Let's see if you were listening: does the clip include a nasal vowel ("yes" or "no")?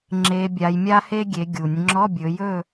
no